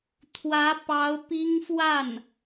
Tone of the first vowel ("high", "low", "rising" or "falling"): rising